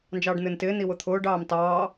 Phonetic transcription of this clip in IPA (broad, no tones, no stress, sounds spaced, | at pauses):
n d͡ʒ ɑː ɖ n̪ ɪː n t ɪː n i w ʊ t̪ʰ ʊː ɖ ɑː m t ɑː